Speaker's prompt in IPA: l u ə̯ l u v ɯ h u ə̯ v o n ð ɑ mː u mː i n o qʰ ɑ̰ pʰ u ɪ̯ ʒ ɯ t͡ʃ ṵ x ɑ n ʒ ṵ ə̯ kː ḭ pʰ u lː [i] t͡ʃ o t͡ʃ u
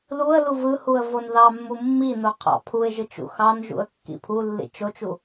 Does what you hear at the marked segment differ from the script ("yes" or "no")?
yes